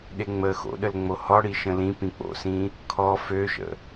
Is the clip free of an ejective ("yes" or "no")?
yes